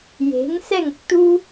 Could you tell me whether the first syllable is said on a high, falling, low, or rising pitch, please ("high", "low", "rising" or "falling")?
rising